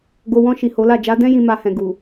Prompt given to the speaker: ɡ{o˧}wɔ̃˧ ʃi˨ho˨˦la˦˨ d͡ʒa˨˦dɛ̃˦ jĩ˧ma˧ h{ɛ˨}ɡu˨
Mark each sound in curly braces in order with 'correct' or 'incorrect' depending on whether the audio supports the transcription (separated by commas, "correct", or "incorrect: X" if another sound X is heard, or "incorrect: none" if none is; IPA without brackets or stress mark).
incorrect: o˨, incorrect: ɛ̃˨